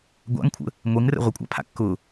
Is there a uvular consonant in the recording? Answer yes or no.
yes